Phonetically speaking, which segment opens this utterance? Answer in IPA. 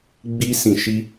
ɡ͡b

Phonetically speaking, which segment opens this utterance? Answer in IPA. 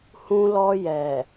h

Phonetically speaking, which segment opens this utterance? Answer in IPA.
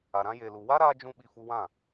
a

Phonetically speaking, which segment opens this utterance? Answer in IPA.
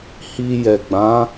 h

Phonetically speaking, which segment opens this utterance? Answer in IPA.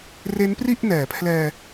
r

